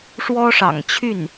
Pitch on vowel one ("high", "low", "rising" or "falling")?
high